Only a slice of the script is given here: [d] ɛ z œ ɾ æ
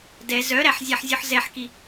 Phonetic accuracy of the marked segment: correct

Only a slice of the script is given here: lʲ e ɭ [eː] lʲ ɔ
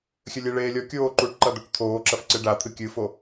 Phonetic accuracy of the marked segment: correct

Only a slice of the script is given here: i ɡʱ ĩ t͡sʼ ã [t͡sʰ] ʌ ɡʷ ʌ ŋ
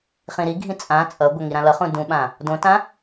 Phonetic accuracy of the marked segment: incorrect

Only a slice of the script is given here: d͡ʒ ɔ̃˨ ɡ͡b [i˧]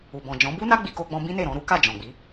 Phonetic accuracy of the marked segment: incorrect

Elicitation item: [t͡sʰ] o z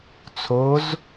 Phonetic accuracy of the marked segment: correct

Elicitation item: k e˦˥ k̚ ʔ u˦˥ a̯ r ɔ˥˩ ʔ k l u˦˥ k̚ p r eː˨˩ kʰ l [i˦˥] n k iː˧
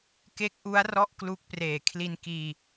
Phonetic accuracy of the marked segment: incorrect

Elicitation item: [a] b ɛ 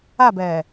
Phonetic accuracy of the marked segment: correct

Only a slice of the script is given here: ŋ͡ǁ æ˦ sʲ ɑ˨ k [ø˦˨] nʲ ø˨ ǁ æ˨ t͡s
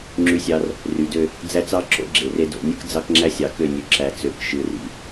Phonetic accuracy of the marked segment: correct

